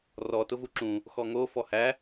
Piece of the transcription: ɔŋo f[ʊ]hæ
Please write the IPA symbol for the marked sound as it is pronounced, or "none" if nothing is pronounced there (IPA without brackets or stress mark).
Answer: ɔ